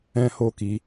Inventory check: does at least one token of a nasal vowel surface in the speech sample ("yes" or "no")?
yes